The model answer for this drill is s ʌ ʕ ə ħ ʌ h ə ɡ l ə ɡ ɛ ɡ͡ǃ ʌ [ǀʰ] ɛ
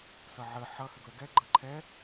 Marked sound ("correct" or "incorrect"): incorrect